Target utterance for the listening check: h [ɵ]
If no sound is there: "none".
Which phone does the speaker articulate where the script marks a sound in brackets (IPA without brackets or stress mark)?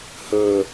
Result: ɵ